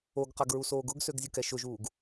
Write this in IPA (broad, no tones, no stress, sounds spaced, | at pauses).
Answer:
o ɡ q a ɡ ɹ u s oː ɡ ʊ ɡ s ø ɡ zʲ ʊ k ɛ ʃ ʊ ʒ uː ɡ